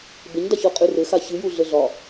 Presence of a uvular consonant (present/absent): present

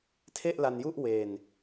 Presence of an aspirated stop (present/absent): present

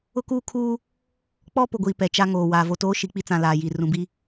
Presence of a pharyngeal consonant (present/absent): absent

